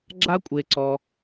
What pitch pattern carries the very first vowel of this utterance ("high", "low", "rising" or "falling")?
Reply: high